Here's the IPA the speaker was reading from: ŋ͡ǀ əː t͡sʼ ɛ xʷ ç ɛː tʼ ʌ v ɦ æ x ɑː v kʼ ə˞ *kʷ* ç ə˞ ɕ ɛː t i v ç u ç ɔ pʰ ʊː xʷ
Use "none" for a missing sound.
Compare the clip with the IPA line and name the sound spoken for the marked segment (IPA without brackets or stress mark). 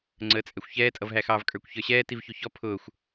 kʷ